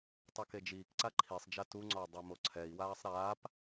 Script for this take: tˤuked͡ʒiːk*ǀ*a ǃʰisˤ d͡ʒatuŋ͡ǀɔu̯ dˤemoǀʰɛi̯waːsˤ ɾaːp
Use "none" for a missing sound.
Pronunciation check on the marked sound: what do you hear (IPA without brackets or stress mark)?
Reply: ǀ